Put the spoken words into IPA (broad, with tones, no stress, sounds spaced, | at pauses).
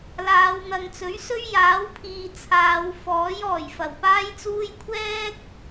l aː˨˧ w n̪ ɐ˨ ŋ t͡s ɵ˨˥ ɥ s ɵ˥ ɥ j aː˨˥ w pʰ iː˨ t͡sʰ aː˨˧ w f ɔː˨˥ j ɔː˨˩ j f ɐ˨˩ w p aː˥ j t͡s uː˥ j kʷʰ ɛː˥ k̚